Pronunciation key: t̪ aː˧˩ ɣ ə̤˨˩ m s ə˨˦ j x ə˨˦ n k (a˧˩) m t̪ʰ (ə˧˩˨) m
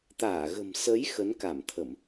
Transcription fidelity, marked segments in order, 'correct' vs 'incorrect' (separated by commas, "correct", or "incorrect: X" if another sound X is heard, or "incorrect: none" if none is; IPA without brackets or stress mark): correct, correct